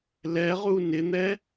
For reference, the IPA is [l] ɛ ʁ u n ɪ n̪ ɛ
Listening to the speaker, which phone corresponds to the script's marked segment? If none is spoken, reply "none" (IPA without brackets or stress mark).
l